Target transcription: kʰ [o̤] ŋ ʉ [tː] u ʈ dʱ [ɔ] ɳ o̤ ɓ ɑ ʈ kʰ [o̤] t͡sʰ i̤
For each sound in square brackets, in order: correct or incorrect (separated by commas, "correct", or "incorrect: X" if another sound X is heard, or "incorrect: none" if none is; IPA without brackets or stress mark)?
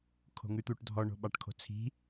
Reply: correct, incorrect: t̪, correct, correct